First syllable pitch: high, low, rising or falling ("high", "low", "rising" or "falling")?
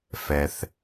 low